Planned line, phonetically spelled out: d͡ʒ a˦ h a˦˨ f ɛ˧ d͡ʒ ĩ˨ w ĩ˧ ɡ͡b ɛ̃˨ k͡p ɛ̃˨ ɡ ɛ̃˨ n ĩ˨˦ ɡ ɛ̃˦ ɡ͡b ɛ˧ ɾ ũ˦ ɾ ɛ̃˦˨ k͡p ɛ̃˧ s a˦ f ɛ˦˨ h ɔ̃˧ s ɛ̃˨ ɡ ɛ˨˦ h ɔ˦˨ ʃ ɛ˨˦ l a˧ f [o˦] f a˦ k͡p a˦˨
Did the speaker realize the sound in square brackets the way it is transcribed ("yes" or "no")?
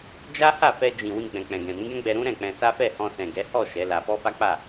no